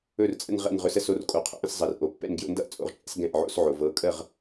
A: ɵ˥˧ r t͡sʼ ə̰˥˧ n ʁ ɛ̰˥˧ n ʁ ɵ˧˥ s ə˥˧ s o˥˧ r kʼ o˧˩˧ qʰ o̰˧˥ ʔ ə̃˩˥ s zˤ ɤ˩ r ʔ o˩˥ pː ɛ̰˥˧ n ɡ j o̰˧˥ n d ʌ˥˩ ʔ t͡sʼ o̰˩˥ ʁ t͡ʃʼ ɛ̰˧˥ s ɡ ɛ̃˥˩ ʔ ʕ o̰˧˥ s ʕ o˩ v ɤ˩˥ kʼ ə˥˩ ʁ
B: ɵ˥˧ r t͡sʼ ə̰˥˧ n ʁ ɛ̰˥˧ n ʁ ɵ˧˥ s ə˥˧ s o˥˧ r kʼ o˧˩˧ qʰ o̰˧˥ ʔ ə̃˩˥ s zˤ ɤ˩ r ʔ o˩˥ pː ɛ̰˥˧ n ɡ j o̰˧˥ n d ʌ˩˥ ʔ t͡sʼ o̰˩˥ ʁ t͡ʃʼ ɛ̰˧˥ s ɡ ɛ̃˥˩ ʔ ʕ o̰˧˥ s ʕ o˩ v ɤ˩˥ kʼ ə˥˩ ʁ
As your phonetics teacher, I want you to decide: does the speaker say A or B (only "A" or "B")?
A